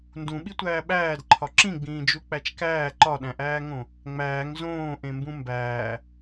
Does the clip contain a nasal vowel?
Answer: yes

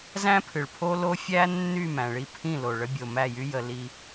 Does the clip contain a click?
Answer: no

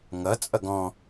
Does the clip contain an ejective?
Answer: yes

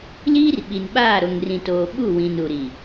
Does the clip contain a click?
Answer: no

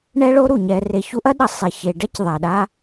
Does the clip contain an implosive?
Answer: yes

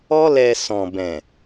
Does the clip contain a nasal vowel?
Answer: yes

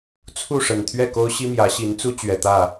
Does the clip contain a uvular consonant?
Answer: no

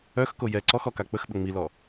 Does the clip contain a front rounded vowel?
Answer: yes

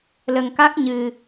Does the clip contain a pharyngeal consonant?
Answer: no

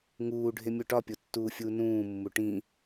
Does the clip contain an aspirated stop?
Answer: no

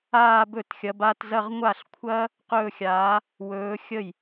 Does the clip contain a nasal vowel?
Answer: no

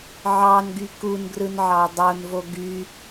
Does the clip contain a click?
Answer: no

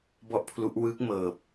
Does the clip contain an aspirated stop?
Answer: yes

